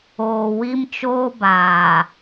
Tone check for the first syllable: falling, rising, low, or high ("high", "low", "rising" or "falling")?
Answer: low